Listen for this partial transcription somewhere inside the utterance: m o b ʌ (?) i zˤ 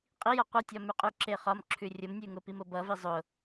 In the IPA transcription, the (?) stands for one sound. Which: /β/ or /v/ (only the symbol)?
v